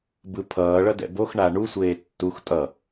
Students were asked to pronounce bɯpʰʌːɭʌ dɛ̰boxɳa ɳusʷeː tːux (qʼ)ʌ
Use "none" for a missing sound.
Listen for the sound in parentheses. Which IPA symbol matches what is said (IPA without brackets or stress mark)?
tʼ